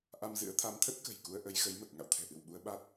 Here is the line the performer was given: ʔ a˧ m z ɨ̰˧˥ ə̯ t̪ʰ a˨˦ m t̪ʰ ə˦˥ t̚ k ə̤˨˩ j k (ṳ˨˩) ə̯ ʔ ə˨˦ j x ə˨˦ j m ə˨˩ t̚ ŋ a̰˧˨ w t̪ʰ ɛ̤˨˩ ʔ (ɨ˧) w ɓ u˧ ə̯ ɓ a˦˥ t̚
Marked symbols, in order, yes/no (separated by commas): no, no